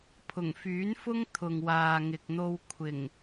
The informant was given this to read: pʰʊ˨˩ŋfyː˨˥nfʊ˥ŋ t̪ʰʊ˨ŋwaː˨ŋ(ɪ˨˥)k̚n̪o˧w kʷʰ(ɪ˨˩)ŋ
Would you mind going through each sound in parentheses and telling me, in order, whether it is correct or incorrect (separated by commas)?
incorrect, correct